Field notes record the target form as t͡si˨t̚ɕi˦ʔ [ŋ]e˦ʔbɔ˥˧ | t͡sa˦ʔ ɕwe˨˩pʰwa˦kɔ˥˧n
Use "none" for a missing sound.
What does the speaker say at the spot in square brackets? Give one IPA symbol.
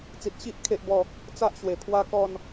kʰ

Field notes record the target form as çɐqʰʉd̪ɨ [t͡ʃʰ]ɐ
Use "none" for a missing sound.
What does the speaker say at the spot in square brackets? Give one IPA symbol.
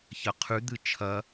t͡ʃʰ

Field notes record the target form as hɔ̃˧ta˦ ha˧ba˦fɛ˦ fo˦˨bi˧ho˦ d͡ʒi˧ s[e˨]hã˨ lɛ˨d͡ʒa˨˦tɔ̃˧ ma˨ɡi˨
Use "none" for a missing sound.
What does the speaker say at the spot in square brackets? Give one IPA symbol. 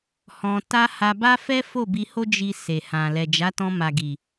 e˨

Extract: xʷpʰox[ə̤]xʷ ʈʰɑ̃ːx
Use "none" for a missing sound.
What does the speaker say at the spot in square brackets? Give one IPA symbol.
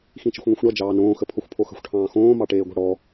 ə̤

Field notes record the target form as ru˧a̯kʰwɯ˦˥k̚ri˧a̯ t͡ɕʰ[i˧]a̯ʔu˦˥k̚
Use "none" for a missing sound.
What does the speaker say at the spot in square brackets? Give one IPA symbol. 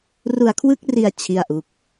i˥˩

